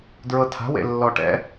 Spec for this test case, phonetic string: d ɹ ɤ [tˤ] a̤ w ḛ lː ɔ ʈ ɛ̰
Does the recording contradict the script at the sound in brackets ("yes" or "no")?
yes